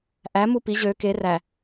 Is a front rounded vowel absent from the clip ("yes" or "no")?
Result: no